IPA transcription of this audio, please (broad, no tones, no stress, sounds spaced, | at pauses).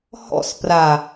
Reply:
h ɔ̰ s p r a